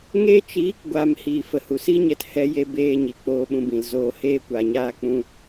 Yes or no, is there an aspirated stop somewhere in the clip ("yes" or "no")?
no